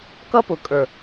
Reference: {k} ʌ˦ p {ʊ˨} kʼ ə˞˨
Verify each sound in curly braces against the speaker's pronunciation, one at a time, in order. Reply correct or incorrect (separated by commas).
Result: correct, correct